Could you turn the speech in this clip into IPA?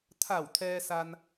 t̪ʰa˧˩wt̪ʰɛː˧sa˧n

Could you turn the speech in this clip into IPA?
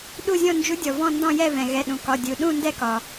ɗu˥˧zʲɔ̃˥˧ nd͡ʒu˧˥dʲɔ˩ vɔ̃˥˧ndɔ̃˥˧jɛ˥˧ vɛ̃˩ɣɛ˩˧˩ɗũ˩kɒ˩˧˩ dʲu˩ɗũ˥˧ ndɛ˥˧kɒ˩

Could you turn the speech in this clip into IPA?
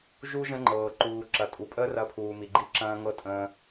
ʒu˦ ʒə̃˦ŋ͡ǃɤː˨ ǃuː˨ ǁɐ˨ tʼu˨ pʼəː˦ rɐ˦pʰuː˨mi˨ ɡ͡ǃi˦ǁɐ̃ː˦ŋɤ˦ tʼə̃ː˦

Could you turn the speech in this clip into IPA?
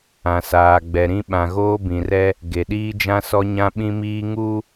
ã˨saː˨ɡ͡bɛ˨ ɾĩ˦ ɓã˨ɣoː˦bĩ˨rɛ˦ | ɡe˨ɗiː˦d͡ʒã˦ sɔ˦ɲã˦ɓĩ˦miː˦ ŋu˦

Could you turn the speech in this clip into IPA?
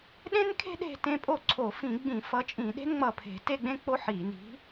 ɗẽ˥nkʰe̤˥ ɗe̤˥˧tẽ˥˧ pʼo˥˩ ǀʰo˧˩˧fĩ˧˩˧ɡ͡bĩ˧˩˧ fʌ˨˥t͡ʃʼĩ˧˩˧ɗe̤˥n ŋ͡mʌ˧˩pʰe̤˧˩˧ te˥˧ɡ͡bẽ˥ k͡po˥ħi˧˩˧ ni̤˨˥

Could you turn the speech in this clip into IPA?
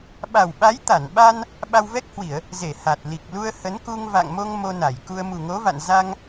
ɓa˨˩wɓa˨˦jt̪a˧˩nɓa˧n | ɓa˧wvɛ˦˥k̚hwi˧˩˨ə̯ | ze˧˩ha˨˩t̚ li˨˩k̚lu˧ə̯ hə˨˦n ku˧ŋ va̰˧˨ŋmo˧ŋ mo˧na˧˩jku˧ə̯ mu˨˩ŋo˨˦va̰˧˨n za˧ŋ

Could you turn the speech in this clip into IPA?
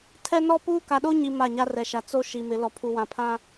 tʰɛ˦nɔ˦puː˦ ka˨ɗo˦ɲi˨ ma˦˨ɲa˦rɛ˨ʃa˨ t͡so˦ʃi˨mɪ˨˦ lɔ˨pʰu˨wã˨pʰã˦

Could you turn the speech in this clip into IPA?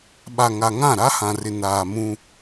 ɓa˨ŋa˨ŋã˦˨ ɾa˦hã˨rɪ˨ naː˨mũ˦

